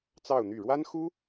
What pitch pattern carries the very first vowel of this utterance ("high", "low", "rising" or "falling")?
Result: falling